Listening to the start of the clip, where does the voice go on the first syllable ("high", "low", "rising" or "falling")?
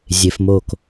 low